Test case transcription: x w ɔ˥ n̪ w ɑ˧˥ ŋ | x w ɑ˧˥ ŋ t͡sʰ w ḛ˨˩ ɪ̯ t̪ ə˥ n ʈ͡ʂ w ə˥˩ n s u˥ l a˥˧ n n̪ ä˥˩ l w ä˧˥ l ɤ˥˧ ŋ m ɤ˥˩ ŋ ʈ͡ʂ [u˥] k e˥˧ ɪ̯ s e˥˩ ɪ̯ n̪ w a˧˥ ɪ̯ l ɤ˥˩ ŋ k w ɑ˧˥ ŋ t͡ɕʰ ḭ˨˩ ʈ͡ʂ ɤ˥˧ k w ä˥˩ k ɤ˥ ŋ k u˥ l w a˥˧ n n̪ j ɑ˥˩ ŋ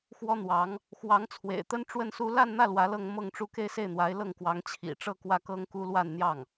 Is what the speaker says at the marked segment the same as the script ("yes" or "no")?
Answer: yes